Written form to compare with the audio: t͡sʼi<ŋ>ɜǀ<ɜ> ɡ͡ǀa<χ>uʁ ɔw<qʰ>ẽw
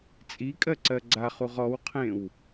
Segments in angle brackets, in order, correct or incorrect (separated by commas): incorrect, correct, correct, correct